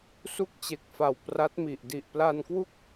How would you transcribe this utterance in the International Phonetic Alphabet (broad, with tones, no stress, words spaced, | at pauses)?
su˥˩k̚t͡ɕe˨˩k̚fa˨˩w pra˦˥t̚mi˨˩ʔ di˨˩ʔpla˧nkwu˥˩k̚